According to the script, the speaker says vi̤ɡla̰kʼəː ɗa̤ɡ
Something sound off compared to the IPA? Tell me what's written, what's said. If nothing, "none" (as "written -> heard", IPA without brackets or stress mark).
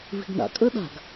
l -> n